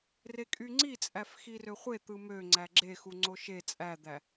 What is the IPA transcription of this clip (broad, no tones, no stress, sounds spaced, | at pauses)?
r e kʼ y ŋ͡ǀ i t͡sʼ æ f x i r ø χʷ e t̪ ɯ m ø ŋ͡ǀ æ ɡ͡ǁ e x u ŋ͡ǀ o ʃ e t͡sʼ æ d̪ æ